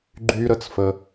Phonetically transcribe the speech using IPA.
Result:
ɡ͡ǃ y˦ ɾ ə˧ t͡s f ə˧

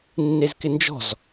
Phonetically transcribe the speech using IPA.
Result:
nː e z k ɪ n d͡ʒ ɔ̤ z

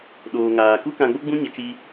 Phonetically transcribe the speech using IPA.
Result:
ɗ oː˨ ŋ aː˨ k u˦ k ã˧ ɡ͡b o˦ ɡ͡b ũ˦ ɲ ə˧ t͡ʃ i˧

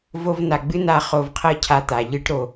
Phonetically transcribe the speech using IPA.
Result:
v o˧ v n a˨ ɡ͡b ɨ˦ n a˧ χ o˧ v qʰ ɤ˦ cʰ a˧ t̪ a˨ ʎ ɨ˧ ʈ ɾ o˨

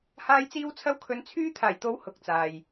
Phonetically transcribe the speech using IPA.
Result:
h aː˧ j t͡s iː˧ w t͡sʰ ɐ˧ w kʰ ɵ˨˧ n t͡sʰ yː˧ t̪ʰ aː˨˩ j t̪ o˨˥ w h ʊ˨ k̚ t͡s aː˨ j

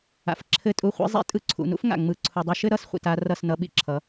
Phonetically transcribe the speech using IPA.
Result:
a̰˨ f ǁʰ ɘ˦˨ tʼ u˦˨ χʷ ḭ˦ zˤ ḭ˦ tʼ ɯ˧ ǀʰ ṵ˨˦ n ṵ˦ f ŋ a̰˨ ŋ͡m ɯ˧ ǀʰ u˨ dˤ ɯ˧ ʃ ɘ˦ ɾ ʌ˦˨ s χʷ ḭ˨ t a˧ r ʌ˦˨ s n ʌ˧ ɓ ḭ˧ ǁʰ ʌ˨˦

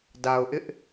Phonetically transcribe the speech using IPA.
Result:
d a˨ ʊ̯ ʔ ɪ˦ ʔ

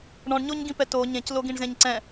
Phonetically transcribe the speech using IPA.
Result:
ɳ ɔ̃ ɳ ɲ o ɲ ɡ ĩ p ɛ t o ɲ ẽ c l o ɡ ĩ ɳ z ẽ ɲ ǀ ɛ̃

